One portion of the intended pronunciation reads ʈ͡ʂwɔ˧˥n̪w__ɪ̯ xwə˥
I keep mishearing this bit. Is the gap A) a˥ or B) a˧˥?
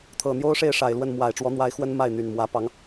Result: B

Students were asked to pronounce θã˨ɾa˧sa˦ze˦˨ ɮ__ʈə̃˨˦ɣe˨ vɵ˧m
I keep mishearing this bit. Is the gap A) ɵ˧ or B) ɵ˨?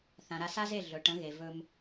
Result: B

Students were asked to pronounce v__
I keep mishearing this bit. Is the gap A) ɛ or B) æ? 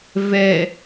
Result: A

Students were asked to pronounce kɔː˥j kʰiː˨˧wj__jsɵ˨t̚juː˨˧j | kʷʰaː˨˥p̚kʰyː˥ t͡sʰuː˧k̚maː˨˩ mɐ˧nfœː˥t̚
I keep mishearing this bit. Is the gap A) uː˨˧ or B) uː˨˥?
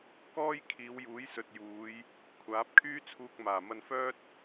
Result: B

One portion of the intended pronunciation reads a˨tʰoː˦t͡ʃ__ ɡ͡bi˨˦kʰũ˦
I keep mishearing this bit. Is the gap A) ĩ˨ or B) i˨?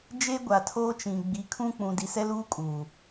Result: A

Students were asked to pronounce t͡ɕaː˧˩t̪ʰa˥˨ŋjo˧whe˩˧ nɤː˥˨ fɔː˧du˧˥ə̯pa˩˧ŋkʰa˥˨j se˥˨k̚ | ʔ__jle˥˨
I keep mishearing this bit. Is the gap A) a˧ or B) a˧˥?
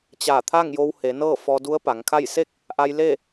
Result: A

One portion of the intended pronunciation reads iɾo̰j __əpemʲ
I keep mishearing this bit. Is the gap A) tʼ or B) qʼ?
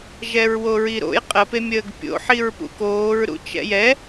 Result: B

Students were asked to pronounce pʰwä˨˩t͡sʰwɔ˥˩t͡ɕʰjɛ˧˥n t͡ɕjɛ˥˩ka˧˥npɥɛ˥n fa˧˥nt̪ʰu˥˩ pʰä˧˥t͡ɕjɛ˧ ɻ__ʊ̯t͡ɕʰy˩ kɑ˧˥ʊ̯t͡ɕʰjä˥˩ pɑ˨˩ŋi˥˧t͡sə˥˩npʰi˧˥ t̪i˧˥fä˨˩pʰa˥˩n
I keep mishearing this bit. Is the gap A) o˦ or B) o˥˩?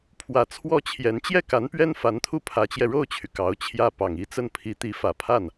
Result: B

